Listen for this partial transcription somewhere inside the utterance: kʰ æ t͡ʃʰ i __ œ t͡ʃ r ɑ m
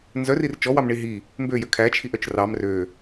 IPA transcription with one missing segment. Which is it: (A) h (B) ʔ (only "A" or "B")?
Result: B